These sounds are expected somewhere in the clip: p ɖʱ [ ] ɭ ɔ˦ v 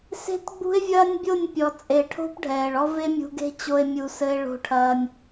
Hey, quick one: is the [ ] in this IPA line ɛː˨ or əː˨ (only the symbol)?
ɛː˨